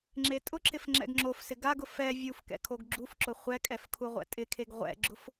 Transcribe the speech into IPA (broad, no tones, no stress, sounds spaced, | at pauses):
ŋ͡ǁ e tʼ ʊ ǁ ɪ f ŋ͡ǁ ɛ̰ ɡ ŋ͡ǁ o f s ɪ ɡ a ɡ ʊ f ɛ vʲ u f k ɛ̰ kʰ o ɡ ɡ͡ǁ u f ǁ ʊ χʷ ɛ kʼ ɛ f kʰ u ʁʷ ɛ̰ tʼ ɪ kʰ e ɡ ʁʷ ɛ̰ ɡ͡ǁ ʊ f